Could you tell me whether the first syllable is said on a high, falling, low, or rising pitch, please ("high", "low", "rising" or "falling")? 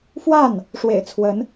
falling